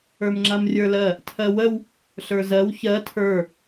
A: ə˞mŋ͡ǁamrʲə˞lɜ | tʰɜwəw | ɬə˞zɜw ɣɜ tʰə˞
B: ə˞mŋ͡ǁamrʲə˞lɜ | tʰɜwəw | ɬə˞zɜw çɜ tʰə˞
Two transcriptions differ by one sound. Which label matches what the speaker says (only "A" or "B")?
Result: B